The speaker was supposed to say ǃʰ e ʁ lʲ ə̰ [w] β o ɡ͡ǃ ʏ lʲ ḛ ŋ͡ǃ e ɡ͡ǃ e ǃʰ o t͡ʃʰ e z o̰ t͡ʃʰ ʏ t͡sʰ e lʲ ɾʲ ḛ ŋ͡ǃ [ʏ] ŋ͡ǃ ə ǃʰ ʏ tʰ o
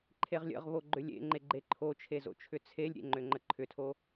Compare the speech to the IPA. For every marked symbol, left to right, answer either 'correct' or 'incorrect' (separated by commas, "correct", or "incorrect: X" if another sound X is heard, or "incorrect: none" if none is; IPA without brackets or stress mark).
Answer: incorrect: ʁ, correct